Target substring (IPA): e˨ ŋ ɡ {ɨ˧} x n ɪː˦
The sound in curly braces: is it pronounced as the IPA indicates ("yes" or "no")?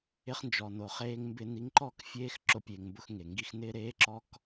no